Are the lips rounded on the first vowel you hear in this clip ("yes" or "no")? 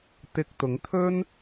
no